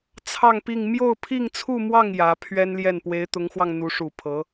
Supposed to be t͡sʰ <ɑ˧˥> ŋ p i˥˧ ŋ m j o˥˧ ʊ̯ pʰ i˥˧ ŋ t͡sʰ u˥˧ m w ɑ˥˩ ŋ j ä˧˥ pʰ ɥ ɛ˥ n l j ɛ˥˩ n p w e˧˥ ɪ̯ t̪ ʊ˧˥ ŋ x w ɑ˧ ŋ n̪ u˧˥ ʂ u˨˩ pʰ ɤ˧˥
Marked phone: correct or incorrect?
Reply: incorrect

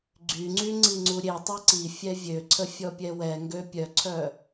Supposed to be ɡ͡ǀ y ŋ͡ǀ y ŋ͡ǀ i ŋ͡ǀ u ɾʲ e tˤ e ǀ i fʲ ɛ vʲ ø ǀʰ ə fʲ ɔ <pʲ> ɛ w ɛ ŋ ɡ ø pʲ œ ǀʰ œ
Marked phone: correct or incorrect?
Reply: correct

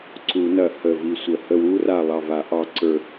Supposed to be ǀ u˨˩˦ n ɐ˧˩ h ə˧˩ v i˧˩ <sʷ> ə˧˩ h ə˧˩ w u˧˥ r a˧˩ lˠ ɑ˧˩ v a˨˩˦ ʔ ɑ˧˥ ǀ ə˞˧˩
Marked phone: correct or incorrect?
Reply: correct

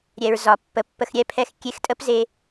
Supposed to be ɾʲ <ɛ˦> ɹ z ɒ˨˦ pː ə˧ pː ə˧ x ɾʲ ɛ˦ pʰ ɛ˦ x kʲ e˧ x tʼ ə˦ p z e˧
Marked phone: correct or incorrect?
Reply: incorrect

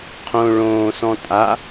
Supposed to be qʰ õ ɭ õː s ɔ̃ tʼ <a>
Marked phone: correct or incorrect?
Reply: correct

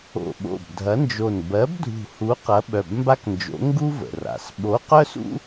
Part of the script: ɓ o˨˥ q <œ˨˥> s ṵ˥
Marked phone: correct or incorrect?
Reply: incorrect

